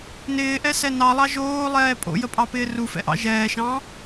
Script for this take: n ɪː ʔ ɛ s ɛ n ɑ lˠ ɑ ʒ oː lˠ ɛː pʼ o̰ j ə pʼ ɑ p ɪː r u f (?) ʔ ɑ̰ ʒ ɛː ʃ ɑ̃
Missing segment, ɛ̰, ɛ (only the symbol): ɛ̰